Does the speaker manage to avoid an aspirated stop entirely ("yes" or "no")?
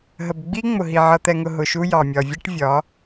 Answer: yes